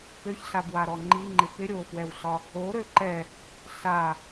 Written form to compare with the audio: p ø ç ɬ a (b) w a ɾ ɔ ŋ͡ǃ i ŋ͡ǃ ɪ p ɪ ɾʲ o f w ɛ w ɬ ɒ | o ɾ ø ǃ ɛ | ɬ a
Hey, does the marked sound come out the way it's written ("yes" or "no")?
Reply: yes